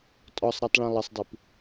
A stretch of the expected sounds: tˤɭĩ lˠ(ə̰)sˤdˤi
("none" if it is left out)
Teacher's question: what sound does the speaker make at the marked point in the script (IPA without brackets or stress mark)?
ə